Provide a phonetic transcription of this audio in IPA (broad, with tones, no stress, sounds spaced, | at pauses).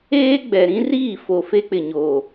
eː˦ ɡ͡b ɛ˨ ɾ ĩ˦ r iː˦˨ f o˨ f e˦ k͡p ɪ˨ ɲ oː˨